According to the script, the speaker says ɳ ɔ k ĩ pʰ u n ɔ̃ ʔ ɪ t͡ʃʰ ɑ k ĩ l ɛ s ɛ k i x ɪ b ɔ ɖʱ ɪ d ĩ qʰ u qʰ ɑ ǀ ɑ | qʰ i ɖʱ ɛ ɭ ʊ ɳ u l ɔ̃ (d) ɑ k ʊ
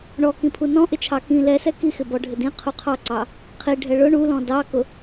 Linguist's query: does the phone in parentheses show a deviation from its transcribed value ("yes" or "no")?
no